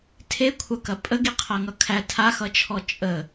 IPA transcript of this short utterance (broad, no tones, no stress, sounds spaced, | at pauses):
tʰ e kʷʰ ɐ k ɐ pʼ ə ɡ i qʰ ɐ ŋ ʌ kʰ æ tʰ a x ʌ t͡ʃʰ ɔ t͡ʃʼ ə